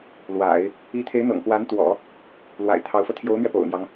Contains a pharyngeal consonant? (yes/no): no